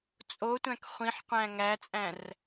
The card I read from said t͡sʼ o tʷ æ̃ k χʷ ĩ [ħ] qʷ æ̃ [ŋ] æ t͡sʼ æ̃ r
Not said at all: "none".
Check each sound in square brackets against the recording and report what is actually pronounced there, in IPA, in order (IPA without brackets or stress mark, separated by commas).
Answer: ħ, ŋ